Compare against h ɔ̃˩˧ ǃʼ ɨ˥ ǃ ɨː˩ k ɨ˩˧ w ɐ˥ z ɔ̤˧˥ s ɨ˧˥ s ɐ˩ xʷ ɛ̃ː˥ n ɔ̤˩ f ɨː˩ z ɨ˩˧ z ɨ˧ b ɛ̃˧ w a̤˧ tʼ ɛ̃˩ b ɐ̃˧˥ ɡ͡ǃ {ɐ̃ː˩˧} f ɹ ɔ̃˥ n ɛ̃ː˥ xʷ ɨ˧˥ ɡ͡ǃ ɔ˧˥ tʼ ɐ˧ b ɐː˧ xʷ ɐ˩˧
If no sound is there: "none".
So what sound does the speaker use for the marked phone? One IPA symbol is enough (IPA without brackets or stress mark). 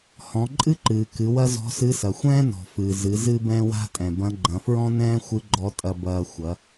ɐ̃˩˧